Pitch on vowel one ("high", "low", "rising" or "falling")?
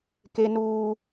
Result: low